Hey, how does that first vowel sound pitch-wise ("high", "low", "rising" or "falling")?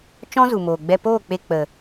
high